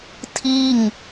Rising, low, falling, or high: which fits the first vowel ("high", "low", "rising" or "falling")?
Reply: falling